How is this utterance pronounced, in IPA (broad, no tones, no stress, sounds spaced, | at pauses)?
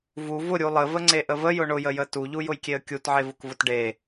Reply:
v u v ʊ ɾʲ u lˠ ə v ə ŋ͡ǀ e ʔ ə v ə j ʊ ɳ ʊ j ə j ə t u ʎ u j ʊ j kʲ e ə̯ kʲ u t ʕ e v ʊ k v ʊ t ɖ e